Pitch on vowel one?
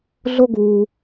high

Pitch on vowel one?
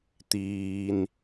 low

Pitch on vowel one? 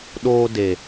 high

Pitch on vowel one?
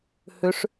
rising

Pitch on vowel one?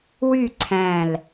falling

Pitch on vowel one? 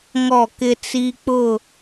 falling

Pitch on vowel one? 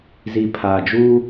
low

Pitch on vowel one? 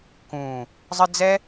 low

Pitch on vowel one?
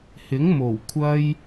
rising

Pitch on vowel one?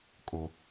high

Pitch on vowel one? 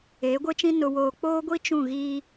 rising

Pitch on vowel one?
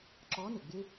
rising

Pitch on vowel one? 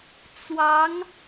rising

